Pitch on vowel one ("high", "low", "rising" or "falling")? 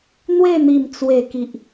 falling